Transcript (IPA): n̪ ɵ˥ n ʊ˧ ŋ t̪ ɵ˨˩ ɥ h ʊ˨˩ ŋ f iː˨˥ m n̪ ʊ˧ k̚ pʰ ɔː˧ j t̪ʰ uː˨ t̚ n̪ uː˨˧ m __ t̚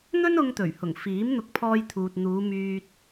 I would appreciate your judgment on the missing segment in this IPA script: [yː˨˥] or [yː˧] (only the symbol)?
yː˧